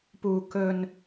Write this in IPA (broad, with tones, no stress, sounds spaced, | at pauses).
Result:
p uː˨ k ɵ˨ n